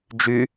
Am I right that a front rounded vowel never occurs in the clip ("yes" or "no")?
no